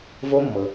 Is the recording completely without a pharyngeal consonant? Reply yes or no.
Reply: yes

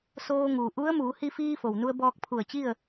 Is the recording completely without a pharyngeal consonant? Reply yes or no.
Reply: yes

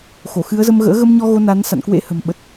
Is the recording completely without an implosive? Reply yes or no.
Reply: no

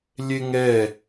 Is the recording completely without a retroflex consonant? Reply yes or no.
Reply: yes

